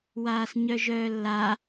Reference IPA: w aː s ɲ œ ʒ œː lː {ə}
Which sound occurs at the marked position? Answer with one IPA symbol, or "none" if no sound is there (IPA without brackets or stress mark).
a